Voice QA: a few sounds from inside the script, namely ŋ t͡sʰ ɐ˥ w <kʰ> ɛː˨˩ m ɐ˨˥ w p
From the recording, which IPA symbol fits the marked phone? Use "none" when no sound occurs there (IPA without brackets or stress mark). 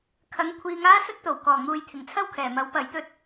kʰ